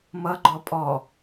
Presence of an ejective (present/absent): present